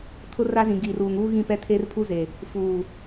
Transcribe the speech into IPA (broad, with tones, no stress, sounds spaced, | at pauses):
tʰ ʊ˦ r a˦ z ĩ˨ ɡ iː˨ r uː˨ ŋ uː˦ ɣ ĩ˦˨ p ɛ˦ tʰ eː˦ r pʰ u˦ z e˨ | f uː˨